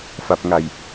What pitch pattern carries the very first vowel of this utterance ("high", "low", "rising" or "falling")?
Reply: low